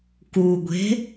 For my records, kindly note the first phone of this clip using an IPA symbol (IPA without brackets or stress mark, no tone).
k